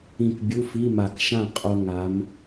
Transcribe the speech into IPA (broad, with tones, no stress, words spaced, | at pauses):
ĩ˧˩k bʲu˧˥˧fi˧˥˧ma˧˩k ʃã˥˨qʼo˧ ŋa˩˧m